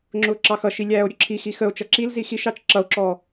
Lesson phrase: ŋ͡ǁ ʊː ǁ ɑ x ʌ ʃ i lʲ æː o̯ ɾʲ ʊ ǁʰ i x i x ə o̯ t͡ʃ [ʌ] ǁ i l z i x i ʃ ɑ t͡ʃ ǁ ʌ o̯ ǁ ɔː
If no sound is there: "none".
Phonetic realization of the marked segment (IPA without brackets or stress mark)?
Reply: ʌ